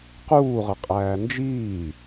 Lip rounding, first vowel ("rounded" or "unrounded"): rounded